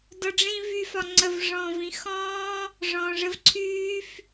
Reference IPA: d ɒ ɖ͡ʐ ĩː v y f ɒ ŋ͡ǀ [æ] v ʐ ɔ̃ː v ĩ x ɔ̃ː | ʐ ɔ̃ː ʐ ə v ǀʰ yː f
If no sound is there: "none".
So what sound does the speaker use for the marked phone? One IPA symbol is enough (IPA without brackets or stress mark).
ə